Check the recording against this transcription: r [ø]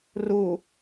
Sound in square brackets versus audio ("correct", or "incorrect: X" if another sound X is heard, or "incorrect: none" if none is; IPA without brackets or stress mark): incorrect: u